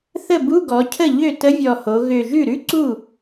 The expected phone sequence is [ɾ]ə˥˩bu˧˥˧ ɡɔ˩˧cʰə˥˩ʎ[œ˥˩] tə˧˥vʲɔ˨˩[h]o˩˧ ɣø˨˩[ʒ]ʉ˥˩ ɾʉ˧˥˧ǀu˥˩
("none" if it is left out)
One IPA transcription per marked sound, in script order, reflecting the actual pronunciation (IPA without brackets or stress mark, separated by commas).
θ, ø˥˩, h, ʒ